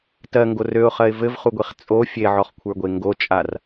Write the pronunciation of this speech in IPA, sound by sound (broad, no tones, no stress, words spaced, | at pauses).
tɜŋɡor øʊ̯χɜɪ̯ vɘvχuɡʷiχ t͡sʼo fʲeʕɔχkʷʰə˞ɡʷe ŋɡot͡ʃʼar